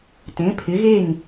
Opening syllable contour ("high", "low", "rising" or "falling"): rising